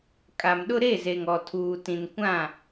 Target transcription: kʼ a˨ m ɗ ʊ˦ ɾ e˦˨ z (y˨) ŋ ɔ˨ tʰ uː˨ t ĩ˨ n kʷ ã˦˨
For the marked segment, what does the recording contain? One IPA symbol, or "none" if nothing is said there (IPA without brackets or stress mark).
e˨